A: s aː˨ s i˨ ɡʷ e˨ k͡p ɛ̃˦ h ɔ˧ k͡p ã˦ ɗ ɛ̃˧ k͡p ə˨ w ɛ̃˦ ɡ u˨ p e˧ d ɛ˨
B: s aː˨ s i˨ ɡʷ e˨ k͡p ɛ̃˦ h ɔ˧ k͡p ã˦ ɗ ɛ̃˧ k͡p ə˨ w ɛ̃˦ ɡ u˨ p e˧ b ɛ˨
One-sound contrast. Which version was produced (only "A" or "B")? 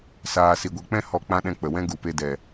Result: A